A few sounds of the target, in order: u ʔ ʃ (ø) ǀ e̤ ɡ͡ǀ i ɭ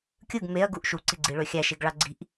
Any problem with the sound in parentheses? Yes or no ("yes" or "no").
yes